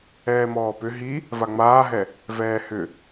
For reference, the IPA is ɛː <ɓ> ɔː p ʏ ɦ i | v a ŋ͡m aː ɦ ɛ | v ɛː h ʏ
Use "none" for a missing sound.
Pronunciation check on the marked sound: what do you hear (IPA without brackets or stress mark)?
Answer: m